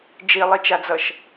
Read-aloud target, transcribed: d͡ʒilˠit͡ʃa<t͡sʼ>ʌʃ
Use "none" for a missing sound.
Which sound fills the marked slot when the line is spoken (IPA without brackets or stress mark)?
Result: d͡z